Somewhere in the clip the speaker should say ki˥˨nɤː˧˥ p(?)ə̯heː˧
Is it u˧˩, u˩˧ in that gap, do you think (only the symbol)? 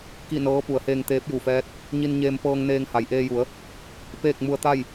u˩˧